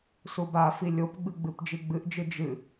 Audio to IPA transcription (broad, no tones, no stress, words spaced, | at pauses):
subafi lʲopɡ͡bɨ ɡ͡bɨpd͡ʒiɡ͡bɨʔd͡ʒɨ d͡ʒɨ